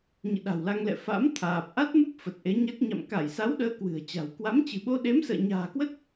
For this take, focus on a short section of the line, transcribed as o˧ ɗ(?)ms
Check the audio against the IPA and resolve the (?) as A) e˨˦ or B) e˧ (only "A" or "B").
A